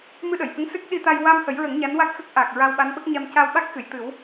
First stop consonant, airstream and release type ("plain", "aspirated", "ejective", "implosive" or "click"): implosive